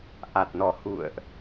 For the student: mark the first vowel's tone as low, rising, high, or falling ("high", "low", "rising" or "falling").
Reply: low